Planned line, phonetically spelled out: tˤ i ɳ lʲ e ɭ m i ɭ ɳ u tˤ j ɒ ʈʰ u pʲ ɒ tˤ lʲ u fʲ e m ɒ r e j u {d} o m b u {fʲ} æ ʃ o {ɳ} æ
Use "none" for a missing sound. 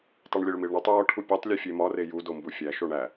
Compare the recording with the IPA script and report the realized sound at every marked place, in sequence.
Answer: d, fʲ, ɳ

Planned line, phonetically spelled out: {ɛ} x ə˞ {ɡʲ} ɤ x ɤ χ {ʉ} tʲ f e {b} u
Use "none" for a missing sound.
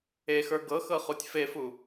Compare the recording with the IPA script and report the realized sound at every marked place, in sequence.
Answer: e, ɡ, u, f

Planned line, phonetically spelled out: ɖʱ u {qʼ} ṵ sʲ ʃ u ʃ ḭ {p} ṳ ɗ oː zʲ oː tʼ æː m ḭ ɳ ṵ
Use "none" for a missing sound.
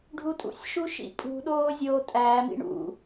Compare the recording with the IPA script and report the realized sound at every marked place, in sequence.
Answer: tʼ, pʼ

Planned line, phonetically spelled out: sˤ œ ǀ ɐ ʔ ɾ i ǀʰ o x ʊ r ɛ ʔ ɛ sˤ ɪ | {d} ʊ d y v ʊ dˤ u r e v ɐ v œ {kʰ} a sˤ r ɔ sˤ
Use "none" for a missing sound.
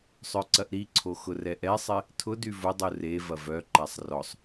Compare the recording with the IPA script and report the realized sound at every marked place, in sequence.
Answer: tʰ, ǃ

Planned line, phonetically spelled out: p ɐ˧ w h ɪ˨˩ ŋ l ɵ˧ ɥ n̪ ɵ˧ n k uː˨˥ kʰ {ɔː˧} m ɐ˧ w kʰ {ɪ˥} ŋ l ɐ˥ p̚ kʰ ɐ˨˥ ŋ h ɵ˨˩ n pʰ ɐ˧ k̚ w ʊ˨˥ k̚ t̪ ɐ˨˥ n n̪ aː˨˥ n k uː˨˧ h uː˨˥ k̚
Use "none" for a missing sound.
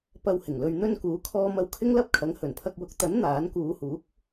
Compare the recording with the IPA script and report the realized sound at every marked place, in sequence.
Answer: ɔː˧, ɪ˥

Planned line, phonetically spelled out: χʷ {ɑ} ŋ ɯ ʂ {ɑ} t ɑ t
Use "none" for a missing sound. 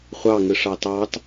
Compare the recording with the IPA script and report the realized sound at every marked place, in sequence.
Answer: ɑ, ɑ

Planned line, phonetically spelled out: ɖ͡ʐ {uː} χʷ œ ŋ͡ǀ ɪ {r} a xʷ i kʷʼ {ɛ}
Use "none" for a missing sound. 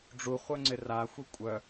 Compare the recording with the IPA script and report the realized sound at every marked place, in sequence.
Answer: u, r, œ

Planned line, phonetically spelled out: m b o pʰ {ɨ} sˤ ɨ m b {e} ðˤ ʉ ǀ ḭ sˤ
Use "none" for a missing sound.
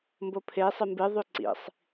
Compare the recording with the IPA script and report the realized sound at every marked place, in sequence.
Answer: e, ɨ

